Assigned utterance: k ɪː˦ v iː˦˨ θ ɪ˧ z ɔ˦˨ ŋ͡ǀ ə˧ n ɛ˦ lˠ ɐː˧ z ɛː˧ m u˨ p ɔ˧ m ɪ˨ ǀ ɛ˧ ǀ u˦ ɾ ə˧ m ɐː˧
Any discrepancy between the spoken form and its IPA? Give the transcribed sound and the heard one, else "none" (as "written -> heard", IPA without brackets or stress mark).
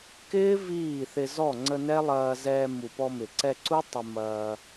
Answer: ɾ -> tˤ